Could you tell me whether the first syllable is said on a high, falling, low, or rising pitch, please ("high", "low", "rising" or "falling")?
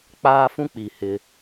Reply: high